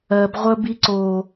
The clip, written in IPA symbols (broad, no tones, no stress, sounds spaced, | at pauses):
ɜ b ʁʷ ə b i ǀ o